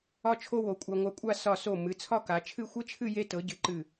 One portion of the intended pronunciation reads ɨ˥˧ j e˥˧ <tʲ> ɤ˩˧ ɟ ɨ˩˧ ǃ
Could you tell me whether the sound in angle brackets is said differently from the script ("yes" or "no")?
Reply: yes